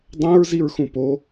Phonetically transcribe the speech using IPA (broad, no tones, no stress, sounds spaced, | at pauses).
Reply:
dˤ ɛ̃ ɹ z i ɹ x ũ p o